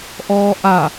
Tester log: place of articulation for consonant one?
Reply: glottal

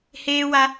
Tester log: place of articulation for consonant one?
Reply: glottal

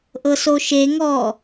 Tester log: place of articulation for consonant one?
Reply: glottal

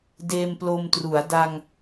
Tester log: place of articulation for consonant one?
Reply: alveolar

